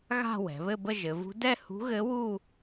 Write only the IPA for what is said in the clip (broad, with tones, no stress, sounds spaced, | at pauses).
ɣ a̤˥˧ w ɛ̤˩˧ β ɘ˥˧ b ə˥˧ ʒ ɘ˩˧ v ṳ˧˥ d ɛ˥˧ h ṳ˧˥ ɣ ɘ˧˥ w u˥˧